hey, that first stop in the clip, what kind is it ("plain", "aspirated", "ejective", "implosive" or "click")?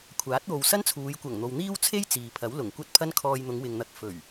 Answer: aspirated